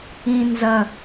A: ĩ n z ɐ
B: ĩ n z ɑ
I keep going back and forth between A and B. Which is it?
A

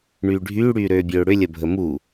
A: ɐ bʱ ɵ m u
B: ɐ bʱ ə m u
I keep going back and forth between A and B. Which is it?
B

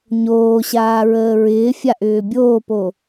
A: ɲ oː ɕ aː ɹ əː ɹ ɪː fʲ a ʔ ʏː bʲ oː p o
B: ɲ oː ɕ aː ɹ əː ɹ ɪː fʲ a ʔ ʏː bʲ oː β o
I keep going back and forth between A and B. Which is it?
A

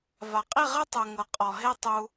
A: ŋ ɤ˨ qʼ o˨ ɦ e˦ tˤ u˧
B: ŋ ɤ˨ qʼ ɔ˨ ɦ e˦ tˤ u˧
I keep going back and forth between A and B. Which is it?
B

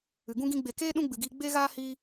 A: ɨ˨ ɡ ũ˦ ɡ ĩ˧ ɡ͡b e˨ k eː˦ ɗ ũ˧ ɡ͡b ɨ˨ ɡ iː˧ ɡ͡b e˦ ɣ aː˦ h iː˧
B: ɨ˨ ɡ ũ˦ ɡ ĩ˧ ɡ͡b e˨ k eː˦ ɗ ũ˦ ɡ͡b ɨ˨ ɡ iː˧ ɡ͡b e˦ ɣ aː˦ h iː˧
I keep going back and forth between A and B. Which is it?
B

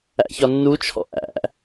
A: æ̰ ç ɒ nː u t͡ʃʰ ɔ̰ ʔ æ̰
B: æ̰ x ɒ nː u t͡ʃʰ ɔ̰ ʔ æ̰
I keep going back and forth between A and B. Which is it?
A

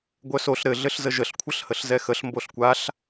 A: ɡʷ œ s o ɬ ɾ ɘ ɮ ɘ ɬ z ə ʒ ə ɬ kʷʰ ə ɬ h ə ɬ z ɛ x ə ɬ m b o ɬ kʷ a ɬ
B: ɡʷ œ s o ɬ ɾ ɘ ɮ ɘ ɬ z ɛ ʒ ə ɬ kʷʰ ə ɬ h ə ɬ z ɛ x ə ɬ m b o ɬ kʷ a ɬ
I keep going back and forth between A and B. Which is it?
A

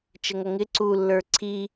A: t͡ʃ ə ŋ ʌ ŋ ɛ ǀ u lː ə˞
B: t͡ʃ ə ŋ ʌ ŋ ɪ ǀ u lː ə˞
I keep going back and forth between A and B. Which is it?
B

